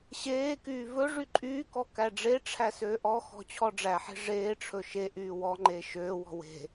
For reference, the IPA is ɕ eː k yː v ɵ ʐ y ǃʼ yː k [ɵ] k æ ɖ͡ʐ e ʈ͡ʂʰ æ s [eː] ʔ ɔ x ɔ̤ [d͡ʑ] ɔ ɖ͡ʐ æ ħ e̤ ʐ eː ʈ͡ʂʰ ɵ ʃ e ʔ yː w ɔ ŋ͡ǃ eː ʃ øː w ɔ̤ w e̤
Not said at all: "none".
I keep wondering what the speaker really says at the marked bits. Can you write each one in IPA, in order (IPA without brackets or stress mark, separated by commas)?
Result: ɔ, øː, t͡ɕʰ